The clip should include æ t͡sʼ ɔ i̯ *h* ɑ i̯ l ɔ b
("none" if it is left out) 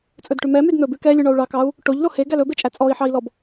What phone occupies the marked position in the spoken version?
ħ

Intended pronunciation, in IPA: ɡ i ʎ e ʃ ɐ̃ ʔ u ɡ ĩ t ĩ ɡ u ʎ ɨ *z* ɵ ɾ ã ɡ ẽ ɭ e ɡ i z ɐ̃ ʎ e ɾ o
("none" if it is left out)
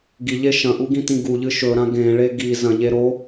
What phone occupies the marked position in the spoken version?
ʃ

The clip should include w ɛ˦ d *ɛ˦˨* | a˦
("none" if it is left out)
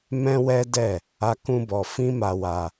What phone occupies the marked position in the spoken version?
ɛ˦˨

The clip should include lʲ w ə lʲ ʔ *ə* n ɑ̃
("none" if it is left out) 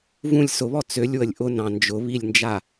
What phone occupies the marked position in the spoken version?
ʊ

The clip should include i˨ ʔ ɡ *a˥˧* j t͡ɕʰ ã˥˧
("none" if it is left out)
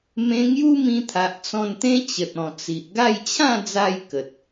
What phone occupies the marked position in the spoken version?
a˥˧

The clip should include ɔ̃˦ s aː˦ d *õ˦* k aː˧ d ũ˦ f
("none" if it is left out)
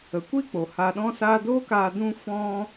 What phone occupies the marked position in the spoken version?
o˦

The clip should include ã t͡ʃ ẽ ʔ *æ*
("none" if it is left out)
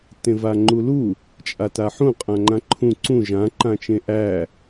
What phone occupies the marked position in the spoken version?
æ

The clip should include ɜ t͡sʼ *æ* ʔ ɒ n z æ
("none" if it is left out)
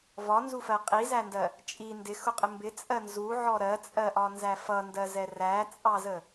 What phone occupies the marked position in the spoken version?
ɜ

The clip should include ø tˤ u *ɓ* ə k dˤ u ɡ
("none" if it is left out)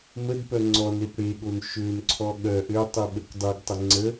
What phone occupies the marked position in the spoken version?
ɓ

